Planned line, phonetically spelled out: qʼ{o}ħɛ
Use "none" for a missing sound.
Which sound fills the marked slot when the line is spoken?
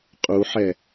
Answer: u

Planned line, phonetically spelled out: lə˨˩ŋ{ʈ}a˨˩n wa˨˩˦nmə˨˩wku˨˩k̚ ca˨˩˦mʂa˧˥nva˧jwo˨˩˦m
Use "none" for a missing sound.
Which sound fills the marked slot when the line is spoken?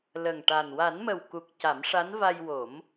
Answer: ʈ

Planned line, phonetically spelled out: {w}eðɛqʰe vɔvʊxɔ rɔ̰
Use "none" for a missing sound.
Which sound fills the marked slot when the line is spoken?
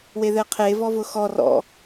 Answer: w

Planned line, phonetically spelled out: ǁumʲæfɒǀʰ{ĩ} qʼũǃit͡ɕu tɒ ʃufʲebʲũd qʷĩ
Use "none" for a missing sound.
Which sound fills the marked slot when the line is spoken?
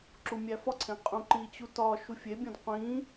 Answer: ẽ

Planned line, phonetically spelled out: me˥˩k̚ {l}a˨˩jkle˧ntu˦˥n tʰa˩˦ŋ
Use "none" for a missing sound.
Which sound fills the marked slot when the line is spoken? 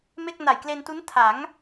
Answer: n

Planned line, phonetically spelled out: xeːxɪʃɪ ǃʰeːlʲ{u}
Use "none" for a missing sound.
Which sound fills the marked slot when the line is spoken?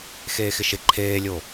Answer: o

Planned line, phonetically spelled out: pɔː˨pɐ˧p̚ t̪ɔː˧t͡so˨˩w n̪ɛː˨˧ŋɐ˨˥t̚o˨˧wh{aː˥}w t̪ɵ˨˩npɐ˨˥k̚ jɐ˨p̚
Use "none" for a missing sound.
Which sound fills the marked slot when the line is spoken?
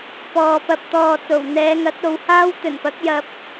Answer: aː˥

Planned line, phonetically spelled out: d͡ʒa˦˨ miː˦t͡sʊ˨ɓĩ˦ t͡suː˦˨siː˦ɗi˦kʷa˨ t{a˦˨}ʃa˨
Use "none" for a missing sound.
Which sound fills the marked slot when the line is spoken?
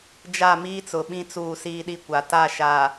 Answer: a˦˨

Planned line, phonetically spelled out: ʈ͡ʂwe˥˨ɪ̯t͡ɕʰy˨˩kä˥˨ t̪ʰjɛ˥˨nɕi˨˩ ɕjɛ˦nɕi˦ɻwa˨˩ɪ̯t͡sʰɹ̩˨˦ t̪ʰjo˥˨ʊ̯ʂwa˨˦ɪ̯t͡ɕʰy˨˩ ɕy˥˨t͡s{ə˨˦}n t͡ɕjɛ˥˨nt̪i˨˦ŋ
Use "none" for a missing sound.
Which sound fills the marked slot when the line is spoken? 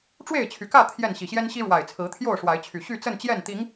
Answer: ə˥˨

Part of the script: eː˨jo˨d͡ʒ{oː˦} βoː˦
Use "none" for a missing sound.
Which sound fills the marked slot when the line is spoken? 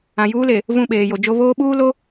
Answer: o˦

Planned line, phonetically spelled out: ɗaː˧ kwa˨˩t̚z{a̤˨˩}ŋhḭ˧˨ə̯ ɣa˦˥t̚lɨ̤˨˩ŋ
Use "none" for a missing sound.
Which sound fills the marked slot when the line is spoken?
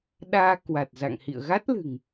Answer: a̰˧˨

